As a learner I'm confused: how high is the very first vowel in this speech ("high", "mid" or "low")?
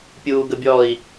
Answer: high